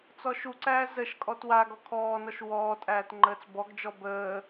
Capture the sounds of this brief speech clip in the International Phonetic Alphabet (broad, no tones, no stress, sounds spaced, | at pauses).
t͡s ɔ ʃ u ǀ æː z ə ʃ kʼ ɔ t w a ɡ ɔ kʰ ɔː n ɔ ʃ w ɔː tʼ æː t ŋ͡ǃ əː t͡s b ɔ ɡ d͡ʒ ɔ b əː